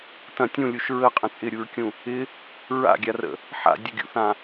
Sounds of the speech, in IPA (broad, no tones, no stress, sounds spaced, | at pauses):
t ɐ̃ tʲ ũ lʲ u ʃ ɹ ə qʼ ə̃ t͡sʼ ɪ ɾʲ u ɹ kʲ ũ | ɪ | ɹ a̰ ɡʲ a r ə̰ | ħ a̰ dʲ ə ɡʲ ṵ θ ã